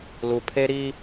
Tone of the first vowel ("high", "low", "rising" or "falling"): low